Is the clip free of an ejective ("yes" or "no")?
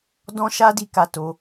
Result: yes